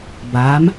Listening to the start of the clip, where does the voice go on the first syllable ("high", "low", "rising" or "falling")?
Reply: rising